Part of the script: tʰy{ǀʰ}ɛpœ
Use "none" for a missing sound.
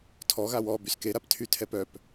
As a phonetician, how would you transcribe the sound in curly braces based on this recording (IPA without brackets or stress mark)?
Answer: tʰ